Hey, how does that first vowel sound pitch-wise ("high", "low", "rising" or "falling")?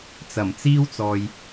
low